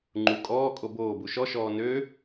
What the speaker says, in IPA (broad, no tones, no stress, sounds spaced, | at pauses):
ŋ͡ǃ u kʼ ɔː kʼ o b oː b u ʃ ɔ ʃ ɔː n ø